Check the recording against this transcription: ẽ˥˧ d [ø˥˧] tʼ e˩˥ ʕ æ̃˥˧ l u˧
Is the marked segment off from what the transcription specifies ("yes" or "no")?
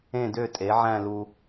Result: no